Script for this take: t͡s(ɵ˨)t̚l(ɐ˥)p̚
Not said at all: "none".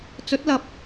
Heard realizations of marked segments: ɵ˨˥, ɐ˨

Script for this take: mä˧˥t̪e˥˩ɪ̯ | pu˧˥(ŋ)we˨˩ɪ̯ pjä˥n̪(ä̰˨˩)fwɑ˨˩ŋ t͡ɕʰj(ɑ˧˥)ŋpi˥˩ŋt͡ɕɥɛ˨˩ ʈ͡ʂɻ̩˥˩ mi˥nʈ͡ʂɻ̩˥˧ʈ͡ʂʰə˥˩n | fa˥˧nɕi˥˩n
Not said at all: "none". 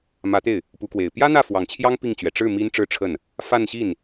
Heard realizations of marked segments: k, ä˥˩, ɑ˥

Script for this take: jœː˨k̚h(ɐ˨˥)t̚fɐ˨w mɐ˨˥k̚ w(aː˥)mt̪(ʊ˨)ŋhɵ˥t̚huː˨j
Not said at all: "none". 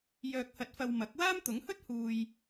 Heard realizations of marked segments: ɐ˨˥, aː˥, ʊ˨˥

